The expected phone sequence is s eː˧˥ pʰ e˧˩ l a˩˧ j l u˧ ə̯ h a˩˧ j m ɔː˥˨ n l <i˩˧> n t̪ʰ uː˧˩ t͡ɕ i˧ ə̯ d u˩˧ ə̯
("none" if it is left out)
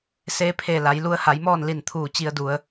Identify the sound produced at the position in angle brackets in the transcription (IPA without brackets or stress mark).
i˧˩